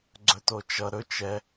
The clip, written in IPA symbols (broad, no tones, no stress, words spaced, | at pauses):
ɡ͡ǀɵtot͡ʃʌ ɾɵ t͡ʃɛ